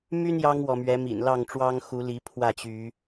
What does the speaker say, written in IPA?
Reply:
m y˦ n j ɑ˦ ŋ w ɔ˨ m ɥ ɛ˨˦ m ḭ˨˩ n l ɑ˥˨ ŋ ʈ͡ʂ w ɑ˦ ŋ x u˨˦ l i˨˦ pʰ w ä˥˨ t͡ɕ y˨˦

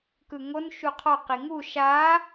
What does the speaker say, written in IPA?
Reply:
k ɯ ŋ o n ʃ u qʰ ɔ q i ŋ u ʃ a

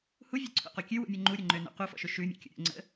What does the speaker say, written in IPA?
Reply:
h u vʲ o ǀʰ o̰ q o kʲ ʉ w ṵ mʲ o ŋ͡ǃ u ɾʲ ɵ ŋ͡ǃ ø n o̰ q u f ɔ̰ ʃ ɵ ʃ ʉ mʲ ṵ kʲ ṵ ɾʲ o̰ ŋ͡ǀ ə̰

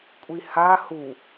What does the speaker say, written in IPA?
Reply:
kʷʼ i h a h u

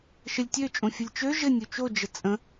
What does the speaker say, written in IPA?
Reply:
ʃ ə lʲ tʲ ø t͡ʃʼ õ fʲ ʊ lʲ t͡ʃ ø ʒ ɘ nʲ u t͡ʃ o d͡ʒ ə t͡sʼ ə̃

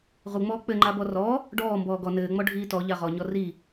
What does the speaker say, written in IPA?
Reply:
ʁ u ŋ͡m ɔː k͡p ɘ ŋ͡ǃ a b ɔ r ɔ | ɖ ɔː m b ɔː ɡ ɔ n ɘː ŋ͡m ɔ ɖʱ iː t ɔ ʎ a ʁ ɔ ɲ ɔ r i

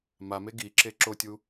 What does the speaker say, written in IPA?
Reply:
m a m e ɡ i ǁ e ǁ o tʲ u

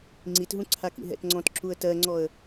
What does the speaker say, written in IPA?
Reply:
ŋ͡ǀ i t ɦ ũ ǀʰ a k ḭ ɦ ɛ̰ t ŋ͡ǀ ɔ̃ t ǁ u ə̯ t ɜ ŋ͡ǀ ɔ ə̯

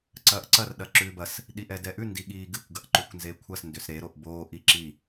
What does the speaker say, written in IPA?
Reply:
ǀ ɐː ʔ ǀ ɐ r ɗ ɐ ǁ ʉː b ɐ s | ɗ i ʔ ɛ d ɛ ʔ ʉ n d i ɠ iː ɡ ɨ kʷ ɡ ɐ ʔ ǃ ʉ kʷ n z e kʷʰ ɐ s n d ʏ s ɾ e ɾ o ʔ b oː ʔ i ǁ i

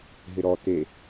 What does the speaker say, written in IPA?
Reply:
ɦ ɪ ɾ ɔ t̪ e

